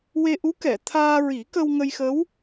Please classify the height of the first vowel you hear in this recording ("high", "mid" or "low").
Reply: mid